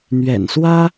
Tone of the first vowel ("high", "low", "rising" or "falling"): low